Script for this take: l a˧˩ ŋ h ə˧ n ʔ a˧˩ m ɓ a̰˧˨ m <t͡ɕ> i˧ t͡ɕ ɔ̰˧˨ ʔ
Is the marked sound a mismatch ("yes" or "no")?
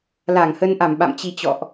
no